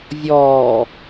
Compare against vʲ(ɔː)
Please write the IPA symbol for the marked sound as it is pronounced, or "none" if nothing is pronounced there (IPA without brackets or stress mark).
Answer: ɔː